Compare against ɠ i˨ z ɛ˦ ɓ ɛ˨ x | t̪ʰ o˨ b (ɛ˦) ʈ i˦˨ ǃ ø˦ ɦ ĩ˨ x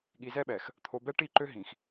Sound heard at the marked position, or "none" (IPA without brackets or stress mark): ɛ˦